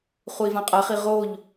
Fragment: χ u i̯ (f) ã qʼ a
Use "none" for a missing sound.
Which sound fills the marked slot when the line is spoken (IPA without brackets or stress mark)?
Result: v